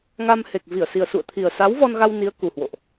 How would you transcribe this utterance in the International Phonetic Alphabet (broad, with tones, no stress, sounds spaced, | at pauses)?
ŋ a˧ m h e˨˩ k̚ v i˧˩ ə̯ s i˨˩ ə̯ s ṵ˧˨ ə̯ t̪ʰ i˨˩ ə̯ s a˨˦ w v ɔ˧ n ɣ a˧ w n i˨˦ ə̯ k u˨˩ h w o̰˧˨ ʔ